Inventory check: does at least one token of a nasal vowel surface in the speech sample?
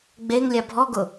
no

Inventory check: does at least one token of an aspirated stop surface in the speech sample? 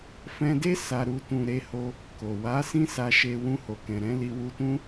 no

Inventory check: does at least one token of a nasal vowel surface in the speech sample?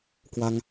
no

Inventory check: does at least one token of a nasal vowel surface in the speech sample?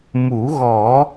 no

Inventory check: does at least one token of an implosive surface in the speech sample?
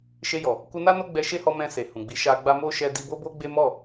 no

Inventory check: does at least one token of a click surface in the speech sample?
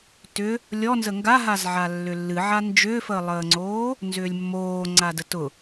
yes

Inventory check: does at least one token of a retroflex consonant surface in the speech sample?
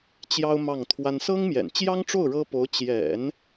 yes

